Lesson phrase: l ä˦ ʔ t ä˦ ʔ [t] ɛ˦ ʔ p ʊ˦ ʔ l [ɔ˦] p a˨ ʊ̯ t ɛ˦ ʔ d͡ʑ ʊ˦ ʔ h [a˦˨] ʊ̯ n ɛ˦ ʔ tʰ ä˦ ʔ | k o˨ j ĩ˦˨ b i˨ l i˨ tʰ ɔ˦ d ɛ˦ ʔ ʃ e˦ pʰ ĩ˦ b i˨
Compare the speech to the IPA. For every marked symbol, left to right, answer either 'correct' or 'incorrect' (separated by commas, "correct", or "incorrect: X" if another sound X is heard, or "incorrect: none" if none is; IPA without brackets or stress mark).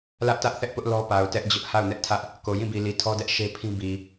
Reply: incorrect: θ, correct, correct